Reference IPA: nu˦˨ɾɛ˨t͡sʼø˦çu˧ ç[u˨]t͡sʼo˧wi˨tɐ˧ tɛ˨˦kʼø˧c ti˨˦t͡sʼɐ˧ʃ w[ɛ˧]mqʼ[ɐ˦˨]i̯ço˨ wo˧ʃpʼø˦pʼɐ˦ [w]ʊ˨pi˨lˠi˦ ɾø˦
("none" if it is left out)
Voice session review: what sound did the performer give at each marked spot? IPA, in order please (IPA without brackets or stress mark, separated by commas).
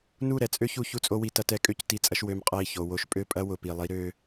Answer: u˧, ø˧, ɐ˦˨, w